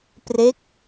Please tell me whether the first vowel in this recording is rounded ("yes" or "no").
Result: no